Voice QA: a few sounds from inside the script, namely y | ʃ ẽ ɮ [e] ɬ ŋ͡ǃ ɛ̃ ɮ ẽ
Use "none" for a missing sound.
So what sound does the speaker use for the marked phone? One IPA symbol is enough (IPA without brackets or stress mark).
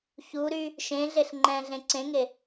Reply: e